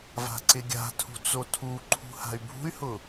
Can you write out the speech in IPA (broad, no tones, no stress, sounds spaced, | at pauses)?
v a̤ ǀ ɪ ɡʲ a̤ tʰ ṳ t͡s o tʰ u ǃʰ ṳ h a̤ y̯ bʱ ṳ y̯ h ʊ